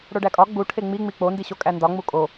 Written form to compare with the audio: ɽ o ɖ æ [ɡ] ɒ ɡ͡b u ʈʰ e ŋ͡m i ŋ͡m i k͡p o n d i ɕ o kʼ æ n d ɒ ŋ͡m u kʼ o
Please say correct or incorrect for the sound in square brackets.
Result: incorrect